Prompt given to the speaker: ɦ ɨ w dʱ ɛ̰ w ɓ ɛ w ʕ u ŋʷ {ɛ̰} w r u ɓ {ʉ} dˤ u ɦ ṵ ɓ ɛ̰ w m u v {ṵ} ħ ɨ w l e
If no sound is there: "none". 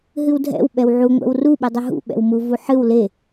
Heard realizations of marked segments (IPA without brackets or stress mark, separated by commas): ɛ̰, ɨ, u